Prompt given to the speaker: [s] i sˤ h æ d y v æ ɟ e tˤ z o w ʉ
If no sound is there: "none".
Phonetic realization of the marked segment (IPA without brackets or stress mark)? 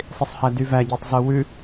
sˤ